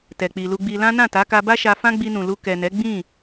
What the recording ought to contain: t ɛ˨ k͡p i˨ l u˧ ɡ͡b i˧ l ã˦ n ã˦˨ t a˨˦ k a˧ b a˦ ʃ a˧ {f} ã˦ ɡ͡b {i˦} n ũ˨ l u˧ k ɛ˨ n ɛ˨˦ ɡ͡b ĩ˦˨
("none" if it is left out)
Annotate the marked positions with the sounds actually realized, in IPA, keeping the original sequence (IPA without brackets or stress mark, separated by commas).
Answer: f, i˧